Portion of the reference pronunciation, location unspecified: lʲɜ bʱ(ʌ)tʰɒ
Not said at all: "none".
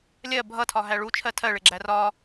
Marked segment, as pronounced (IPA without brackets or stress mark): ʌ